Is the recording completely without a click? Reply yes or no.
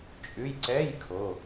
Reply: no